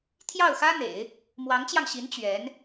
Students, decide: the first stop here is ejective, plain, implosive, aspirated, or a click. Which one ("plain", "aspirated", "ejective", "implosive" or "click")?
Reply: aspirated